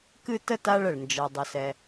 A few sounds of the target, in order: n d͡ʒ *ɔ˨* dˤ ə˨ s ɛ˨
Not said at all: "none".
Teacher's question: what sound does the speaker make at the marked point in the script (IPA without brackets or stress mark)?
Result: ɔ˨